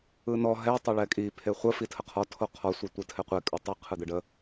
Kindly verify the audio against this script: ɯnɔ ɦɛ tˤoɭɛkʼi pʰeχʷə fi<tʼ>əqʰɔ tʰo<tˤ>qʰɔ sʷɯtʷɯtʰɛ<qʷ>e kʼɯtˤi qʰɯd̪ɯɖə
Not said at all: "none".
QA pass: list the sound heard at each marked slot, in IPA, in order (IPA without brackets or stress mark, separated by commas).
tʰ, none, qʷ